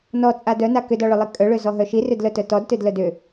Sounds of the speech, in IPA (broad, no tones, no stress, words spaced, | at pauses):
nɔt͡sʼa dœna kʏdɔɭʏlˠi kʼœɭøzɔɦœ ʃirʏdlœtœ tɔdtødlœd ʏ